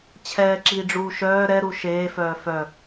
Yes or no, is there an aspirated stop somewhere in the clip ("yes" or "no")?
yes